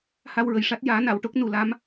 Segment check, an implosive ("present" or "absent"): absent